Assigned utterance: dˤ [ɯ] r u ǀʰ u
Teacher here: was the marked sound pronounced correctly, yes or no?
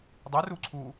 no